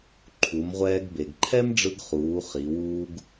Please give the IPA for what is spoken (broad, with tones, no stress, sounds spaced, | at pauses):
ǃʰ u˩˧ m ʁʷ ɛː˧ ɡ b e˩ ɡ ǃʰ ɛ˥ m ɖ͡ʐ ɯ˧ ɡ χ uː˩˧ χ i˩˧ w uː˧ ɡ